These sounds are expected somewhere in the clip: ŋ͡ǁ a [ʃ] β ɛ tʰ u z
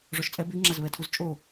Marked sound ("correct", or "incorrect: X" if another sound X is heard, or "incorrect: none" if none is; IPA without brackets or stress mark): incorrect: z